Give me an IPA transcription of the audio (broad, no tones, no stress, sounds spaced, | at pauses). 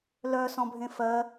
l œ s ɔ̃ bʱ ẽ f ɜ